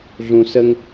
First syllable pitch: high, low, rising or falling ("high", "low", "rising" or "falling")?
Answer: low